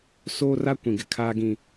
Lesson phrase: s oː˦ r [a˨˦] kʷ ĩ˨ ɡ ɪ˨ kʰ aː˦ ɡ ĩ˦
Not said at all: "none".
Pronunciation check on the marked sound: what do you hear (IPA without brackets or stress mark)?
a˦